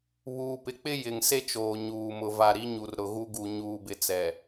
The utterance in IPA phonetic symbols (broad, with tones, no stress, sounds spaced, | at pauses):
β uː˨ p ɪ˨˦ k͡p ɪ˦ j ɪ˨ ŋ s e˦ t͡ʃ oː˨ ɲ uː˨ m ʊ˨ v a˨ ɾ i˨˦ ɲ u˨ r ɾ ʊ˨ ɣ u˦ ɡ u˨ ɲ uː˨ b ɪ˨ t͡s ɛ˨